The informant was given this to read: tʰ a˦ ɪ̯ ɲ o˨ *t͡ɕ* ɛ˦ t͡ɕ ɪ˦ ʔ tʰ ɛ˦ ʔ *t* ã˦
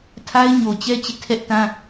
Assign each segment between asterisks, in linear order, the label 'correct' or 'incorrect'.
correct, correct

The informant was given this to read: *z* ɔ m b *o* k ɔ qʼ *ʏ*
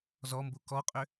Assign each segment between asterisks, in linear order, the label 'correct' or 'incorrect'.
correct, incorrect, correct

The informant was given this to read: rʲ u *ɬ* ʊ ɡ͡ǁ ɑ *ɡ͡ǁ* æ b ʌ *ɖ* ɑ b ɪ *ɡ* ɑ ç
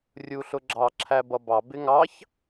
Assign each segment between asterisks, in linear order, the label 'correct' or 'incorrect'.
correct, incorrect, incorrect, incorrect

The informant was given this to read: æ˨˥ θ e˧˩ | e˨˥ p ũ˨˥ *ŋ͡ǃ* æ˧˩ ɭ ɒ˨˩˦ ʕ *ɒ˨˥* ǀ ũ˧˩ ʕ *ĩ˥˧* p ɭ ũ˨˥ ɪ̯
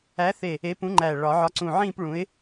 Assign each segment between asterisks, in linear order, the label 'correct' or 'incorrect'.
correct, correct, correct

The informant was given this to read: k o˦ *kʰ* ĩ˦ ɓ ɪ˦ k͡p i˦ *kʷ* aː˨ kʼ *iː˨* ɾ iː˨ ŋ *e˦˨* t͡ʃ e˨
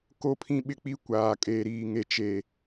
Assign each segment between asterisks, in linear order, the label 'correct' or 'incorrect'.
incorrect, correct, incorrect, incorrect

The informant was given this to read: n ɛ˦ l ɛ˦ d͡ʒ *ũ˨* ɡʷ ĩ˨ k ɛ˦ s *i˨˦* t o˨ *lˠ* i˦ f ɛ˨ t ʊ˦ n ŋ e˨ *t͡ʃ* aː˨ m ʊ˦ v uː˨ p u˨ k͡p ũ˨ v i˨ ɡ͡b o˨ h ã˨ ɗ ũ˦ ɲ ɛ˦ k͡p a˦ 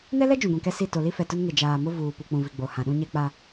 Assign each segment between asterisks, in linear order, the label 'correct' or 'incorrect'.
correct, incorrect, incorrect, incorrect

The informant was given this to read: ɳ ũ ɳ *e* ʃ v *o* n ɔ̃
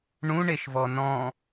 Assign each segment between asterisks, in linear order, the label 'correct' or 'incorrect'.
correct, incorrect

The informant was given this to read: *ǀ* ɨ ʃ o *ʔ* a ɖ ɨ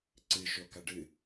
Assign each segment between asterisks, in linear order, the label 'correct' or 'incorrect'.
correct, incorrect

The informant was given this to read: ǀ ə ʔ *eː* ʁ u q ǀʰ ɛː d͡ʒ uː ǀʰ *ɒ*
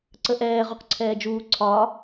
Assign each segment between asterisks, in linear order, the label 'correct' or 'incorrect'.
incorrect, correct

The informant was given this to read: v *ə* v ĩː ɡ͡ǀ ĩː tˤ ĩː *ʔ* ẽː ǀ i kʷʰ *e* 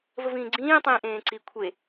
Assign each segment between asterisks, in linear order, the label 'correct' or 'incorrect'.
correct, correct, correct

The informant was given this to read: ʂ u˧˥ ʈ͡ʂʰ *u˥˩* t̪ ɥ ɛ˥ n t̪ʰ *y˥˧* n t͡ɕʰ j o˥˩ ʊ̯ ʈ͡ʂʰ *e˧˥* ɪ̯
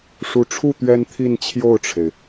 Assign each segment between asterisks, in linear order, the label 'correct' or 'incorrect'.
correct, incorrect, incorrect

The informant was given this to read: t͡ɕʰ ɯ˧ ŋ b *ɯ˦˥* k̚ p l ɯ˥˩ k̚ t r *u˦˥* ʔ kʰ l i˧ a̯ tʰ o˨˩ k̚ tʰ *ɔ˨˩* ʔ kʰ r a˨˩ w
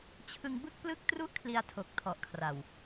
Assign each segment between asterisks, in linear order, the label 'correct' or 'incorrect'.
incorrect, incorrect, correct

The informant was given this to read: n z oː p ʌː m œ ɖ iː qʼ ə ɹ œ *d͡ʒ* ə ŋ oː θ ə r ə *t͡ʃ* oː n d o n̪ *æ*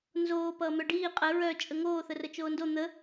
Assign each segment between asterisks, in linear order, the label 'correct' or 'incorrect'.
incorrect, correct, incorrect

